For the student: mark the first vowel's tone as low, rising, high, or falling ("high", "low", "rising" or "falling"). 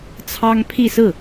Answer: high